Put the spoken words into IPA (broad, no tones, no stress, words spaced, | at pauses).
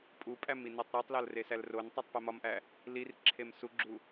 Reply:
pʼupʼæm inetˤɾetˤlɒl resælrontˤutˤ pemɒmʔæ | lir ǁʰemsuɡ͡ǁu